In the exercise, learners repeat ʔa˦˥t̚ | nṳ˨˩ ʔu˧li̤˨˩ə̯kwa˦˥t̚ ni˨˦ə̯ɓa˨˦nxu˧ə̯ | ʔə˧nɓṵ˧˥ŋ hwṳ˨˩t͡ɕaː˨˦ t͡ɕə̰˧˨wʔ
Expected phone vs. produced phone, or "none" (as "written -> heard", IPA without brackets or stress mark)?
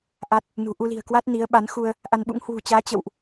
ə˧ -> a˧